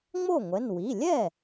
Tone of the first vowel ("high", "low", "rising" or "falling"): falling